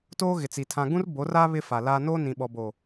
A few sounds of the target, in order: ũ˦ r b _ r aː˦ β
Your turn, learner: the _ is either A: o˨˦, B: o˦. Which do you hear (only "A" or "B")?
A